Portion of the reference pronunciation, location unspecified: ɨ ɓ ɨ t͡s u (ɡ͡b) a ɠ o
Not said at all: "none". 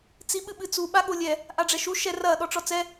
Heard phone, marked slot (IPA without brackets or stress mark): ɓ